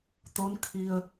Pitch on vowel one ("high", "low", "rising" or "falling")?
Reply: rising